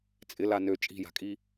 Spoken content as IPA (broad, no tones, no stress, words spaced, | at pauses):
t͡sʼɪla nø t͡ʃʼi̤ja̤kʼi